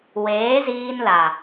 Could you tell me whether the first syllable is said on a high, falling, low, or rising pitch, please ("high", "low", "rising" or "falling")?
rising